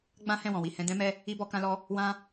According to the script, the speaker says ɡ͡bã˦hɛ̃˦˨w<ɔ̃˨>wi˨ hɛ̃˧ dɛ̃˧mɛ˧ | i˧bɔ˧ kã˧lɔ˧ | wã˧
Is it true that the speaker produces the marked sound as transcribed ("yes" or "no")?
yes